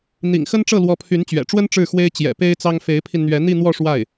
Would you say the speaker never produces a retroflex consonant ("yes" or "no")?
no